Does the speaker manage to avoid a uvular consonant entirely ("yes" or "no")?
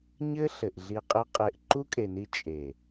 no